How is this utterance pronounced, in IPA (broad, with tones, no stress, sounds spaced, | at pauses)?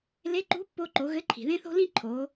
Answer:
l e˧˥ ǃ ṳ˧˥ pː o˧ ǃ o˩˧ ɣ ɘ˧˥ ǃʰ i̤˩ ð ẽ˥ θ o̤˥ l ĩ˥ ǃʰ o˩˧